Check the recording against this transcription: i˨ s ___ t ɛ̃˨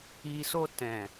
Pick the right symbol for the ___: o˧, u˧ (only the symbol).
o˧